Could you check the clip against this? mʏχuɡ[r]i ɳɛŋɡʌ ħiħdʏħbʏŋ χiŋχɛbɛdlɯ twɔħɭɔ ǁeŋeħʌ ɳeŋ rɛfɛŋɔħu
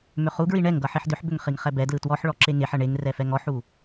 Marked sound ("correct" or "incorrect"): incorrect